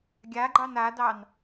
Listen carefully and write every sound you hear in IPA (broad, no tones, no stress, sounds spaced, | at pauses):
ɡʲ a ɡ͡ǃ ɑ n a d ɑ n